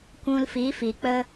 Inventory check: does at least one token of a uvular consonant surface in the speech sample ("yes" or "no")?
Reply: no